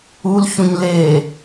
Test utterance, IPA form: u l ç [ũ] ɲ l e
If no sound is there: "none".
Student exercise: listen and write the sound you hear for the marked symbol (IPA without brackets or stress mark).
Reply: ũ